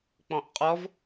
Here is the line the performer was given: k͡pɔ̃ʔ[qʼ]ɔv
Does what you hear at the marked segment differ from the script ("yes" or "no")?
no